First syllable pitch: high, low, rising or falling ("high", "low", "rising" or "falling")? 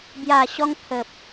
low